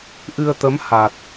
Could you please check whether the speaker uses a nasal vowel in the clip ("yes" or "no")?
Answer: no